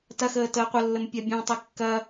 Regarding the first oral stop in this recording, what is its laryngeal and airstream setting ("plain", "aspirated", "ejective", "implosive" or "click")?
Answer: plain